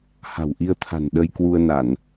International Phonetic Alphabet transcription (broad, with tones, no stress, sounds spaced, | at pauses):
h a̤˨˩ w ʔ i˧ ə̯ t̪ʰ a̤˨˩ n ɗ ə˧ j k w u˧ ə̯ n a˧˩˨ n